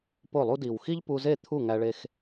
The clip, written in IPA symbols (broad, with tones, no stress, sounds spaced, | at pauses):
p o˥˩ lˠ u˥ d i˨˩ w x i˥ ʎ p u˧ z e˥˩ t̪ʰ u˥˩ ŋ æ˧ ɭ e˧ x